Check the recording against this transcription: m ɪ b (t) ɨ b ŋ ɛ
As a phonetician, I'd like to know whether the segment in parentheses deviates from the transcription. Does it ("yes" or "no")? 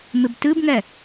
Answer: no